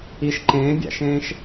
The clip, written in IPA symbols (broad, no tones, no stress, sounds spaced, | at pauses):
i ʃ ǃ ẽː bʲ æ̰ ʃ ẽː ʃ